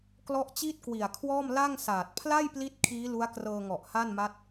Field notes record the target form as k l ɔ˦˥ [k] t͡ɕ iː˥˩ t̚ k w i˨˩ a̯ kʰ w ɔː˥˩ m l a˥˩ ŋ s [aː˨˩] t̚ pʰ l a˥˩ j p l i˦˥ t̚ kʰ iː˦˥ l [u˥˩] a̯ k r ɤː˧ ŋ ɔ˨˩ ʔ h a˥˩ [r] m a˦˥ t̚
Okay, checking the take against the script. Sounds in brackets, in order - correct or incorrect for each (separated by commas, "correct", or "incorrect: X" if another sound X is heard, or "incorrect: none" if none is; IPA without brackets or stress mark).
incorrect: ʔ, correct, incorrect: u˦˥, incorrect: n